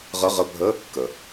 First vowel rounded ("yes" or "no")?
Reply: no